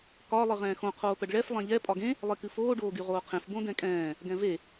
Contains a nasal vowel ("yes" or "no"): yes